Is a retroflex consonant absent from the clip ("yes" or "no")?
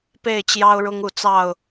no